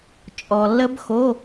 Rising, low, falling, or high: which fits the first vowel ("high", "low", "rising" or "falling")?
low